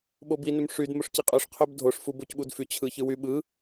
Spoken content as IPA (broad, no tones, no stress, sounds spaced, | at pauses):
ɓ o b i n ø m ʂ y d m o ʂ c i qʼ ø ʂ qʰ ø b dʱ o ʂ f u b o c ɓ u d f y t͡ɕʰ ɯ ç ɯ w y ɓ ɯ